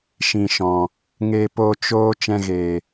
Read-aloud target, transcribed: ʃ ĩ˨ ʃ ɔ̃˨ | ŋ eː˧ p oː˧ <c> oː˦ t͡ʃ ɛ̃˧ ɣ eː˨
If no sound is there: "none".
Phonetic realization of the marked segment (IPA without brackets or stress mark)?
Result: t͡ʃ